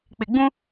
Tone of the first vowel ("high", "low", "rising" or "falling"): low